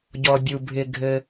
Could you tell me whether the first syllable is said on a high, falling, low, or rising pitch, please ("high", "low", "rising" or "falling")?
low